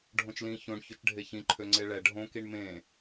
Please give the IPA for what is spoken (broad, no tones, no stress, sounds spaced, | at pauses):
ɖʱ õ t͡ʃ l ĩ ç õ ɳ ç ø t͡ʃ ɖʱ e ç ĩ ǃʰ ø ŋ͡ǀ e ɭ ɛ ɖʱ õ k i ɳ m ẽ